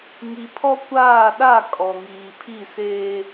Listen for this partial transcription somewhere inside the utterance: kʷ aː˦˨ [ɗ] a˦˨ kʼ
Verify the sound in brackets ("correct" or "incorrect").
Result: correct